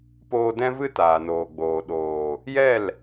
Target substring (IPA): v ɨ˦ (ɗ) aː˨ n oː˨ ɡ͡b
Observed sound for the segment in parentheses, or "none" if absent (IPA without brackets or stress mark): t